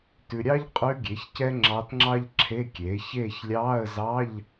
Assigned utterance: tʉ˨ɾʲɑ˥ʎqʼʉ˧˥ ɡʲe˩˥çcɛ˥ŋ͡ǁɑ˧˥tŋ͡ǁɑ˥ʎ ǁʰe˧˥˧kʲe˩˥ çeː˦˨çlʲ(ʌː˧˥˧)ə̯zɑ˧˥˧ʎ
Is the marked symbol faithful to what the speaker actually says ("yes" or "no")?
no